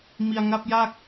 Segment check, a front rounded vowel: absent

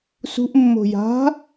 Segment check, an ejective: absent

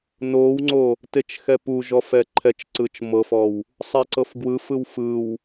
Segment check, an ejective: absent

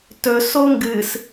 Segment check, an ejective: absent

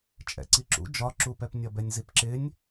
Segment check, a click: present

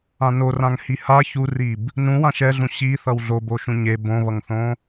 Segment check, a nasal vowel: present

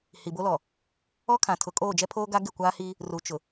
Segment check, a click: absent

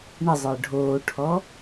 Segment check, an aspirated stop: present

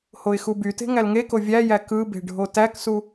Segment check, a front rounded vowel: present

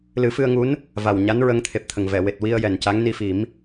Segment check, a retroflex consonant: absent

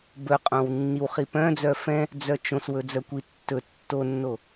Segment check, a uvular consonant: present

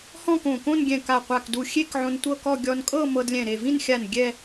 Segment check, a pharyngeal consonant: present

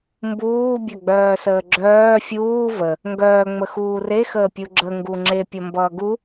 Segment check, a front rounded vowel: present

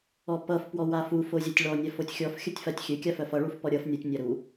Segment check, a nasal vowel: absent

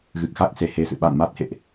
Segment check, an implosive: present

